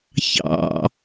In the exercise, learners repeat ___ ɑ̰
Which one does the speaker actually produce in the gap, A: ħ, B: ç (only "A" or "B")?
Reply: B